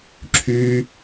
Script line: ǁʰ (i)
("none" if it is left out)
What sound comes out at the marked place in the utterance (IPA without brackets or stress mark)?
y